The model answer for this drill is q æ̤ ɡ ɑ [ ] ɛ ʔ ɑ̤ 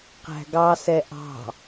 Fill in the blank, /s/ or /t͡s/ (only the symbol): s